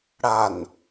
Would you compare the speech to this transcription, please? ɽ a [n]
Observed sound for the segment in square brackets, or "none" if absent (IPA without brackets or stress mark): n